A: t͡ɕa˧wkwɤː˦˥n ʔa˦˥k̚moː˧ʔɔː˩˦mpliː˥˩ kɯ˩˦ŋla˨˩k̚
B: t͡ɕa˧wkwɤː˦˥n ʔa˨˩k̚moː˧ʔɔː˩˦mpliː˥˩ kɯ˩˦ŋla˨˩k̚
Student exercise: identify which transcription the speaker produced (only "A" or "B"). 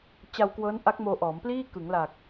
A